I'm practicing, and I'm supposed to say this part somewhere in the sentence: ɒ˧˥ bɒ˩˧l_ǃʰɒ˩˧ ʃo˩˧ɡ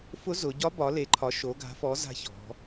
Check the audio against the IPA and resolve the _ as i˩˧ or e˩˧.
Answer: e˩˧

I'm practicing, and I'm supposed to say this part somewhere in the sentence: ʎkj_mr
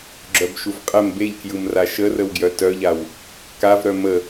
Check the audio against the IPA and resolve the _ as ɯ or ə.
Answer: ɯ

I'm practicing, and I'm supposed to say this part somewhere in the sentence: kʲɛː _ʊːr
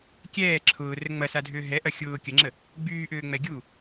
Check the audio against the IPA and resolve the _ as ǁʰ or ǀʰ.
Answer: ǁʰ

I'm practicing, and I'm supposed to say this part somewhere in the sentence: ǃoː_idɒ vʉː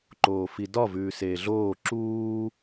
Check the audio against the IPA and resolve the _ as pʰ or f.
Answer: f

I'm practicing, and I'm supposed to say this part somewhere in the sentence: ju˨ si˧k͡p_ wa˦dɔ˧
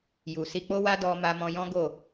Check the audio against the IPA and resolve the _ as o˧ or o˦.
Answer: o˦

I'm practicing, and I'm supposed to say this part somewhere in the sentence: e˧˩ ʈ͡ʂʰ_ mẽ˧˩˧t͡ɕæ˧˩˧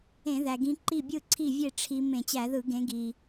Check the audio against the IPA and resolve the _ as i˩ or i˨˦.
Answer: i˨˦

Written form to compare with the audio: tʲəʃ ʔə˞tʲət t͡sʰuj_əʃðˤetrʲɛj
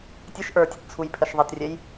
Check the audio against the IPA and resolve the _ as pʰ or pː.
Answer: pʰ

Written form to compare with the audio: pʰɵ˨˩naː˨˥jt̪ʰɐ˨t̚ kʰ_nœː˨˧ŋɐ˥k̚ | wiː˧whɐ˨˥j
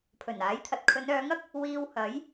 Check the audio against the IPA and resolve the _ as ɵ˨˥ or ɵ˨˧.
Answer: ɵ˨˧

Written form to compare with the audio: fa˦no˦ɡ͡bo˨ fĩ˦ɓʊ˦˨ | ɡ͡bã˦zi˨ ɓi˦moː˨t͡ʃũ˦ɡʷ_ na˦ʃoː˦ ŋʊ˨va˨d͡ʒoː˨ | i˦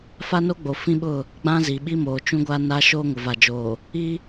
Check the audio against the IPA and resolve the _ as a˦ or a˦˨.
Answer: a˦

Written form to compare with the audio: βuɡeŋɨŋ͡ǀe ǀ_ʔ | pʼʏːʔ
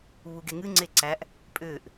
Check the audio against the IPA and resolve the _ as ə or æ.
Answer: æ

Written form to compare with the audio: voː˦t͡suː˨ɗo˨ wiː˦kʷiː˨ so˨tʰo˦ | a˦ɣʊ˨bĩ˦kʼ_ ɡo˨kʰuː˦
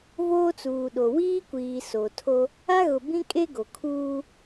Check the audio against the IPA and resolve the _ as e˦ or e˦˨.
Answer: e˦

